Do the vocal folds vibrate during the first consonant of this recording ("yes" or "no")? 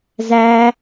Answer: yes